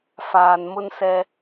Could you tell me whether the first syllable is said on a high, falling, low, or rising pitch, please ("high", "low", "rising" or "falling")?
low